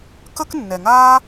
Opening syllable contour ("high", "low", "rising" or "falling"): high